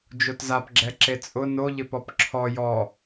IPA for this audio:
d͡ʒ o t z a p ɡ͡ǁ ɛ ǁ e t͡sʼ ʊ n o ʎ ɪ p ɔ p ǁʰ ɔ j ɔ

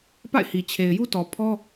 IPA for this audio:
p a̰˦˨ ɪ̯ h i˨ t͡ɕʰ e˨ ɪ̯ j u˦ t ɔ˨ pʰ ɔ˦

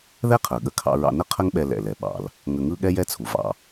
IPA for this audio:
ð ɛ˥ qʰ ə˞˩ ɠ ə˧ kʰ ɑ̰˧ ɹ ɑ̰˧ n ə˥ qʰ ə˥ ŋ ɓ ɛ˧ l ɛ̰˩ l ɛ˩ ɓ ɑ̰˩ l | ŋ ə˧ ŋ ɯ˥ ɠ ɛ˥ j ɛ˥ t͡sʰ u˩ v ɑ̰˧

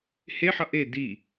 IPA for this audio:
h e ħ ʌ ʔ e d i

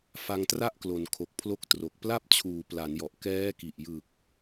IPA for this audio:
f a˧ ŋ t r a˥˩ ʔ k l o˩˦ n kʰ o˨˩ k̚ pʰ l o˦˥ k̚ t r o˨˩ k̚ p l a˥˩ p̚ t͡ɕʰ uː˩˦ p l a˩˦ n j ɔ˨˩ ʔ k ɛː˦˥ k i˨˩ ʔ j ɯ˨˩ k̚

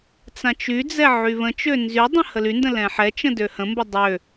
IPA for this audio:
t͡s ã t͡ʃ y d͡z ɛ ʕ y β ə̃ t͡ʃ ø n z y dˤ ə̃ h ə l y n d ə̃ l ɛ̃ ħ ɛ t͡ʃ ə̃ d ø h ə̃ m b ə dˤ ø

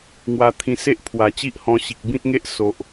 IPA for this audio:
ŋ w a˧ t̪ʰ ĩ˧ s e˦ ʔ pʰ w a˨˩ t͡ɕ i˦ ʔ h ɔ̃˧ ɕ i˨ k̚ b ĩ˦ t̚ ŋ e˦ ʔ s o˨ ʔ

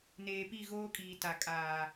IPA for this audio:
n eː˨ p i˦˨ ɣ oː˦ kʼ iː˨ t a˨ kʼ aː˨

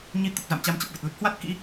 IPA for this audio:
ɲ i˨˦ t̪ ə˨˩ p̚ z a̰˧˨ m t͡ɕ a˧ m t͡ɕ ə˨˩ p̚ v ə˨˩ t̚ l ə˦˥ t̚ h w a˦˥ t̚ k ḭ˧˥

